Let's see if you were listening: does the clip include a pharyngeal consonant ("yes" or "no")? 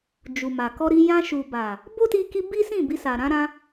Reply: no